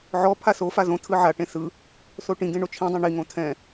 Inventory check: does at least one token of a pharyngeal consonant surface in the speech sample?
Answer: yes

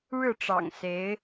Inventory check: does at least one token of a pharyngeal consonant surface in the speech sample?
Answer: no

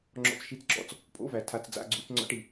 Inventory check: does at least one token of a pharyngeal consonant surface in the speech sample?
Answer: no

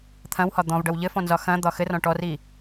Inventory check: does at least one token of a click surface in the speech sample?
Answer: no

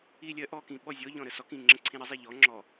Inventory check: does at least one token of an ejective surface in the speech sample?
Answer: no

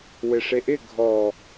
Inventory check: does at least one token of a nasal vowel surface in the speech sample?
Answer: no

